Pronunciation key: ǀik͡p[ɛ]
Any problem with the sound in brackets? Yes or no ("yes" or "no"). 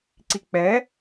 no